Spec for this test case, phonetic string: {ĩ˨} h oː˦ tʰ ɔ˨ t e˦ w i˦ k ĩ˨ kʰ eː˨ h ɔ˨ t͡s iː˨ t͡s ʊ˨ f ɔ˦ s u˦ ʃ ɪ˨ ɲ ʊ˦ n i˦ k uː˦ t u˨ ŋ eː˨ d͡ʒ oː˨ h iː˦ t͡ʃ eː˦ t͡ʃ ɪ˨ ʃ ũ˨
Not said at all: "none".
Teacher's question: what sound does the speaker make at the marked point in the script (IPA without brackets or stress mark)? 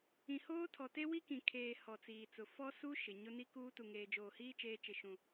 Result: ĩ˨